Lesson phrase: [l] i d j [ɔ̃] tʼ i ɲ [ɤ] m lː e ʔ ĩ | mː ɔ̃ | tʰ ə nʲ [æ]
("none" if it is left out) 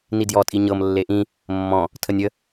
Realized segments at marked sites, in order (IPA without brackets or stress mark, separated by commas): n, ɔ, ɤ, ə